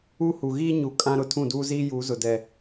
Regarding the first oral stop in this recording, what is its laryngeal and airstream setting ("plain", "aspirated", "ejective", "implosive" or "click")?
ejective